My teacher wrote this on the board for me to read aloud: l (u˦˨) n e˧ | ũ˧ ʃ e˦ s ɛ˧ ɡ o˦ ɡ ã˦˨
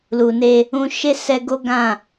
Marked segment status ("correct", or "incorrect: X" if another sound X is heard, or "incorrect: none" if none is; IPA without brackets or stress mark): incorrect: u˨